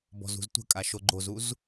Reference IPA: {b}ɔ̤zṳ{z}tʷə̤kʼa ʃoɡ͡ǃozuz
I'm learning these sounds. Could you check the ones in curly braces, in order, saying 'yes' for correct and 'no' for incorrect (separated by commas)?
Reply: yes, yes